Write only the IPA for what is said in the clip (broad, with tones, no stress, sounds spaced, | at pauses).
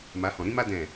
m a˨˦ h ɔ̃˨ ɾ ĩ˦ m a˦ d ɛ̃˦˨